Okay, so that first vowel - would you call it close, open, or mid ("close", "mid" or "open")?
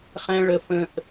mid